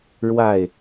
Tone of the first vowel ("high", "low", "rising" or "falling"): falling